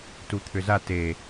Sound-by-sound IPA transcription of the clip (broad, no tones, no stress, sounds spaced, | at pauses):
t u t̪ʰ ʏ z a t e